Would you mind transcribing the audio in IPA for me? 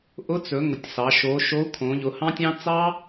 ʔ ʊ˨˥ t͡s ɵ˩˧ ŋ ʊ˩˧ tʲ s ɑ˩˧ ʃ o˩˧ ʃ o˨˥ u̯ kʰ õ˩˧ ʎ ʊ˩˧ h ɑ̃˦ tʲ ɑ̃˦ t͡s ɑ˦

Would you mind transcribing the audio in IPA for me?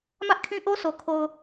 m ä˦ ʔ kʰ ĩ˦ ʔ o˦ s o˨ kʰ o˨ ʊ̯

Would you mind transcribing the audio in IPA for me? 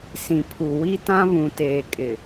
s ĩ˨ pʰ u˨ w i˦ t ã˦ β ũ˨ t eː˨ kʼ ɪ˨

